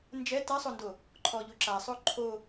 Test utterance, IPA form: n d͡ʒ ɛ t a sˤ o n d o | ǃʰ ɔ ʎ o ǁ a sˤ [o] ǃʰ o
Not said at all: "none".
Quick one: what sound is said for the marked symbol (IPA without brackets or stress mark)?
o